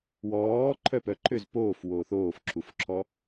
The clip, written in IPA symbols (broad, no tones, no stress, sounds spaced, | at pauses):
w ɔː ǃʰ œ p œ ǃʰ ø z p oː f w oː θ oː f ǁʰ u f ǁʰ ɔ